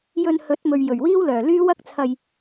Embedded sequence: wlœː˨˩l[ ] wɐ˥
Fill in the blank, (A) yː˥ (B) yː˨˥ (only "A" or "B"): A